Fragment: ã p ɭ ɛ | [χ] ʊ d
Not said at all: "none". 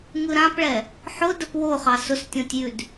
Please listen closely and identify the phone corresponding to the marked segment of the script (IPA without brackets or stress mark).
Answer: ħ